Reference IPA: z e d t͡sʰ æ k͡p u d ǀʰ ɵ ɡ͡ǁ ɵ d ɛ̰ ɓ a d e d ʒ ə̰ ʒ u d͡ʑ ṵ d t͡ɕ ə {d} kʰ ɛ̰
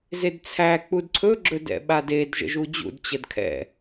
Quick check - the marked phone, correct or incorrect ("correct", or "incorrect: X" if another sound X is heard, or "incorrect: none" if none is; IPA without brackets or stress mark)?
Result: correct